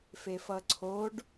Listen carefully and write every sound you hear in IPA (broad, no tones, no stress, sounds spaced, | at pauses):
f e f ʌ ǀʰ o ɖ